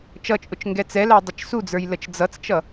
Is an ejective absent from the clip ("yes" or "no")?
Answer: no